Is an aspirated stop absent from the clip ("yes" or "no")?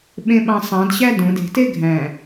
yes